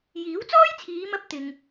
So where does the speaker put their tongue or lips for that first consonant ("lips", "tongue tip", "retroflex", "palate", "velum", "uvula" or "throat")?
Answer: palate